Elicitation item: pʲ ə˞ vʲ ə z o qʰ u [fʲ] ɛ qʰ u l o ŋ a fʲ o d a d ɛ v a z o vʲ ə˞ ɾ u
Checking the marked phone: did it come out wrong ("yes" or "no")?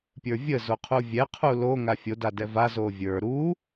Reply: yes